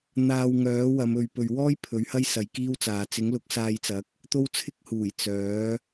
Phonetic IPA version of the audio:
n̪ aː˧ w ŋ œː˨˥ w ɐ˨˧ m ɵ˨ ɥ p ɵ˨ ɥ w ɔː˥ j pʰ ɵ˨˥ ɥ h ɐ˥ j s ɐ˨˧ j k iː˥ w t͡s aː˨˧ t͡s ɪ˨˥ ŋ l ʊ˨˥ k̚ s aː˧ j t͡s ɐ˨˥ k̚ | t̪ o˥ w t͡sʰ ɪ˥ k̚ h uː˨˩ j t͡s œː˨˥

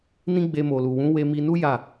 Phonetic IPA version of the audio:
n ĩ˦ ɡ͡b e˧ m o˨ l u˨ w ũ˨˦ w e˧ m i˧ n u˦ j a˦˨

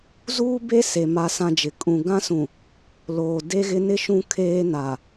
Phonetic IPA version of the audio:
z uː˦ b e˦ s e˨ m a˦ s ã˦ d͡ʒ ɪ˨ kʼ ũ˨ ɡ ã˦ s ũ˨ | l oː˨ d e˦ ɣ ɪ˦ n ɪ˦ ʃ ũ˦ kʰ eː˦ n a˨

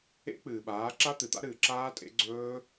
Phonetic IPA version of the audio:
ḛ˦˥ k͡p ɨː˨ ɓ aː˨˥ ǁ a˦˥ t̪ ɨ˨ t̪ a̰˦˥ ɾ ɨː˨ ǁ aː˦˥ tʼ ḛ˨˥ ɡ͡ǀ ɵː˦˥

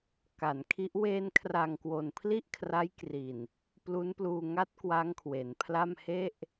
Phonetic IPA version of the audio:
k a˩˦ n kʰ i˦˥ ʔ w eː˧ n kʰ r a˨˩ ŋ k w o˨˩ n pʰ l i˥˩ ʔ kʰ r a˦˥ j k r i˨˩ n | p l u˦˥ n p l uː˧ ŋ a˦˥ t̚ k w a˦˥ ŋ kʰ w e˩˦ n pʰ l a˥˩ m h e˥˩ ʔ

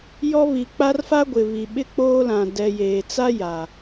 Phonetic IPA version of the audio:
j ɔ˦ β i˨ k͡p a˦ r f a˦ ɡʷ ɪ˨ β i˨ ɓ ɪ˦ k͡p oː˦ l ã˨ d ɛ˨ j eː˨ t͡s a˦ j a˨

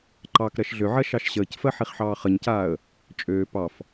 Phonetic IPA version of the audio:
ǃ ɑː k ɾ ɜ ʃ ɮ ø ʕ ɜ ʃ ɑ ʃ ɕ əː c f ɜ ħ i χ ħ ɑː χ ə ɲ c aː ə̯ | t͡ʃʼ øː p ɑ f

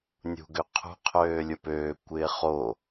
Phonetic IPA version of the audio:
nʲ ṳ ɡ ø qʰ ṳ qʰ øː lʲ ʊ p øː kʷ ɪː χ o

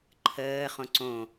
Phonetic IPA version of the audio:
ǃʰ əː χ õ ǀ õ

